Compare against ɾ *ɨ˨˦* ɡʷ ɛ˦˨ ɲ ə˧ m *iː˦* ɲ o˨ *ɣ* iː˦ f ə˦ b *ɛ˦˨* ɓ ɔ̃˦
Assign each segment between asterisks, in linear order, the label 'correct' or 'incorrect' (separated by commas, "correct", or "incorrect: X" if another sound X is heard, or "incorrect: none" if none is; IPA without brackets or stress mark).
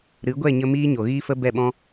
correct, correct, correct, correct